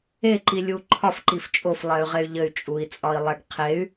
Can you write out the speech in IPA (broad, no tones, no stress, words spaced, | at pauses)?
eǃilʲu ǃʰɒfǃif t͡ʃʼoflˠɛy̯ʁey̯ ʎɘy̯t͡ʃʼui̯t͡sʼɒi̯lˠɛɖ qʰey̯